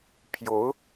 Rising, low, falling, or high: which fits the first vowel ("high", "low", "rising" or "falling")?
rising